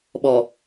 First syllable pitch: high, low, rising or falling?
low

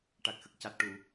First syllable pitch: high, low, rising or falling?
low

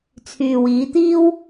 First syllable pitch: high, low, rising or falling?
low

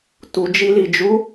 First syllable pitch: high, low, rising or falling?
low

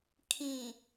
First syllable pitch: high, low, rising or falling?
low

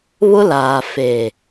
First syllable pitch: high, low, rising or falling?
high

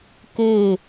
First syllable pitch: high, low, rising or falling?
falling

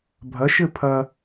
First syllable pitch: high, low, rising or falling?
rising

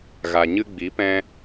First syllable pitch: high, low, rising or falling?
low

